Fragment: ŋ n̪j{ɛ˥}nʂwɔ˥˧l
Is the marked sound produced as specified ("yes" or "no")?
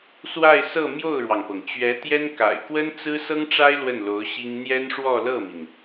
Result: yes